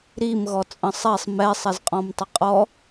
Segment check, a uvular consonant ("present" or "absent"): present